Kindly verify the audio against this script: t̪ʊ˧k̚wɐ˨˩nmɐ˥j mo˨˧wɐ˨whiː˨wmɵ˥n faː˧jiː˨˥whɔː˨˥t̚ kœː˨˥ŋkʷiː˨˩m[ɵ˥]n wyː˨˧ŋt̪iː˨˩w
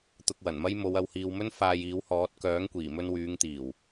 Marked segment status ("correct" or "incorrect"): incorrect